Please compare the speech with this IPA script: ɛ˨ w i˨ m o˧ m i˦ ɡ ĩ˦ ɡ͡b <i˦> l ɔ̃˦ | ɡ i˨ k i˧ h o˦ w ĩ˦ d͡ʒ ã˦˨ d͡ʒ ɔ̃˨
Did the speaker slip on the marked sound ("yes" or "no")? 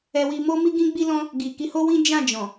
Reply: no